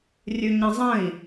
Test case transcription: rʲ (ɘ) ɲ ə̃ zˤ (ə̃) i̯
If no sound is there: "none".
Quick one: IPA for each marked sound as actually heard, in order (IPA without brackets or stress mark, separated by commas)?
ʉ, ə̃